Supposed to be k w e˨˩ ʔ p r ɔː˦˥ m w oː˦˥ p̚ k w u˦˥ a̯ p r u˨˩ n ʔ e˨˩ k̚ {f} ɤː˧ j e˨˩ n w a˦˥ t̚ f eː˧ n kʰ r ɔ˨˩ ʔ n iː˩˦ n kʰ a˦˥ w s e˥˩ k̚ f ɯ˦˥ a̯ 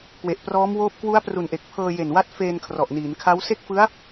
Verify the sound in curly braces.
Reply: incorrect: pʰ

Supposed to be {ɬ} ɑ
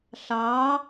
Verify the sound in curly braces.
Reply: correct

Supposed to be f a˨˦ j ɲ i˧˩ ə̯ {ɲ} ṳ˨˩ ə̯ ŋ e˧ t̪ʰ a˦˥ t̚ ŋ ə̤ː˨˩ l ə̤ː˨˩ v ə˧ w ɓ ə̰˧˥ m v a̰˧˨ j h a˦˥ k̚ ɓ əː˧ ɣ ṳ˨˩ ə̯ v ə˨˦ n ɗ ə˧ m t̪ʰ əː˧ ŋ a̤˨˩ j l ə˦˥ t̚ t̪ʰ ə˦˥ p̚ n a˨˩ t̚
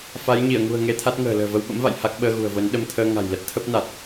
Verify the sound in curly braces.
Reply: incorrect: ŋ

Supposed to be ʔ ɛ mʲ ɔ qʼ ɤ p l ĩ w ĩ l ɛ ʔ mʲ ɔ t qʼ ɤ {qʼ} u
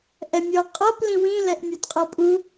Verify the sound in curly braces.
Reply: incorrect: pʼ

